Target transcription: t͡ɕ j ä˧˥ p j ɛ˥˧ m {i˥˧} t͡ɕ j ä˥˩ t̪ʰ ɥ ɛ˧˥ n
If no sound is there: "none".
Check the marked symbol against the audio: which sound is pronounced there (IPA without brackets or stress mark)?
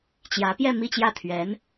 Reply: i˥˧